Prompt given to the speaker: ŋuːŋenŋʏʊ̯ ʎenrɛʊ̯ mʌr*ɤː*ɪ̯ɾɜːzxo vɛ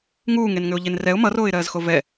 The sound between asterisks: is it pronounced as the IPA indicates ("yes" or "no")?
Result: no